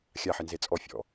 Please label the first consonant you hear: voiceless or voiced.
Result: voiceless